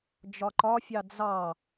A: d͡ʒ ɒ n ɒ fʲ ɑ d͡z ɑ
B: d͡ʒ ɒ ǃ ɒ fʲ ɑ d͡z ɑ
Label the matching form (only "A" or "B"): B